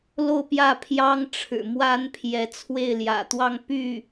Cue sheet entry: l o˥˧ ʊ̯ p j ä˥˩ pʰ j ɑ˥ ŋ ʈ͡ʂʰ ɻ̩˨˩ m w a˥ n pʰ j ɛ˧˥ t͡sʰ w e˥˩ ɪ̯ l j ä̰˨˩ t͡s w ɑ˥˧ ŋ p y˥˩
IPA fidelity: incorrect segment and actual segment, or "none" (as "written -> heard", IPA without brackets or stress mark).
t͡s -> t̪